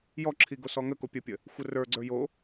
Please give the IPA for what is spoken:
j ɔ ǁʰ i ɡ o s ɔ ŋ ə k o pʲ ə pʲ ə | xʷ ə r ə˞ ɡ͡ǀ ə˞ j o

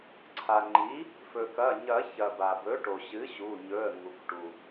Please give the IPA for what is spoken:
ǀʰ a˩ ŋ͡ǃ i˩˥ | f ɵ˩ k ɐ˩˧˩ ɲ ɐ˨˩˦ ç ɐ˩ b a˩ b ɵ˩˥ ʈ o˩ ɕ ɨ˩˥ ɕ u˩˧˩ ɲ ɵ˩˧˩ ə̯ ŋ u˩ k ʈ u˩

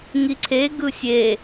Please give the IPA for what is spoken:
ŋ i ǀʰ e ɡ ɯ sʲ e

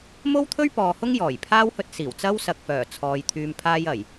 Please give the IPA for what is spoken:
m o˥ w t̪ʰ ɵ˥ ɥ p ɔː˨ h ʊ˥ ŋ j ɔː˨˩ j pʰ aː˥ w h ɵ˧ t̚ s iː˨˩ w t͡s ɐ˥ w s ɐ˨ k̚ f œː˨˩ t͡sʰ ɔː˨ j t̪ʰ yː˨ m pʰ aː˧ j ɐ˨˩ j

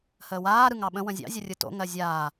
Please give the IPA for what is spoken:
h əː w aː ɾ ɯ ŋ ɑ ɓ ə̃ w ə̃ zʲ ɑ̰ zʲ ʊ rʲ ɯ t o̰ ŋ ɜ zʲ aː

